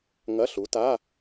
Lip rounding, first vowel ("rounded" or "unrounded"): unrounded